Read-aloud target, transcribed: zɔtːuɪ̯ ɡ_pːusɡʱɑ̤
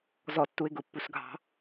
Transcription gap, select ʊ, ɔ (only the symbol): ʊ